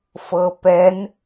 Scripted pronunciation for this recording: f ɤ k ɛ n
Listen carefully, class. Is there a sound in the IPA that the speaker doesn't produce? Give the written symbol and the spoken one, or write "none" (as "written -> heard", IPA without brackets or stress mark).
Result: k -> p